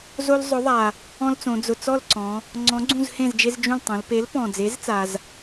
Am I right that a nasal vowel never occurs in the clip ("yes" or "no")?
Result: no